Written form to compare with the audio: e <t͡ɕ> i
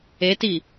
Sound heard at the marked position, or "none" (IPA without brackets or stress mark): t